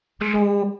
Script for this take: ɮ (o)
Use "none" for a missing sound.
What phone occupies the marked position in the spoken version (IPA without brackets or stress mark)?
oː